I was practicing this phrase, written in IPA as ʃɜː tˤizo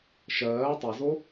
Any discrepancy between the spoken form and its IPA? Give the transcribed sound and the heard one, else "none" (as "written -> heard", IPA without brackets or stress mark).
none